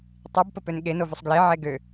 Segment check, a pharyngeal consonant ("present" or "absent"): present